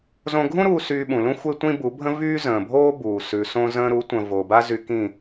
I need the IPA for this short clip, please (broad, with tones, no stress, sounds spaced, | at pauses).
z õ˧ ɡʱ ũ˦ ɾ uː˧ s yː˧ ɓ ũ˨ l ũ˦ xʷ e˦ tʷ ĩ˦ b u˨˦ bʱ ə̃˦ v yː˦ z ə̃ː˨ bʱ oː˦ b uː˨ s ʉ˨ s õ˧ z ə̃ː˧ ɾ u˨˦ tʷ ə̃˨ v o˨ b a˦ z y˧ k ĩ˦˨